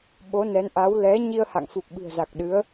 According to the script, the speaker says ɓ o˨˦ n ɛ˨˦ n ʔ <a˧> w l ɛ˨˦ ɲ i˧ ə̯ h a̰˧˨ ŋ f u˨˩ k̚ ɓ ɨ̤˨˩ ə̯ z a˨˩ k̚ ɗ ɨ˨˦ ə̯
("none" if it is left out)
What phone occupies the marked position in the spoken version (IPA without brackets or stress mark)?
a˨˦